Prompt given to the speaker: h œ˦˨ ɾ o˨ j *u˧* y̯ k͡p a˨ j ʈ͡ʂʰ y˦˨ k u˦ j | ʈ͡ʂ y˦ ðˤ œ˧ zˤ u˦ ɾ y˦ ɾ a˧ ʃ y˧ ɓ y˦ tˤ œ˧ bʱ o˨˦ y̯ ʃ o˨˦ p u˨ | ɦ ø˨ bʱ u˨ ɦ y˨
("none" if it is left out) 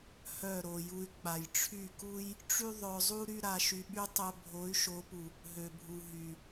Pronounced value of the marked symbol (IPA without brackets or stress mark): u˧